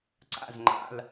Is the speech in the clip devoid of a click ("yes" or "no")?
no